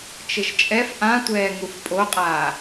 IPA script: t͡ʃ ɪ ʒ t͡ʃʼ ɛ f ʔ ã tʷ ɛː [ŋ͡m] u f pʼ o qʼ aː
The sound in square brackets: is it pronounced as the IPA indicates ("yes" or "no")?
no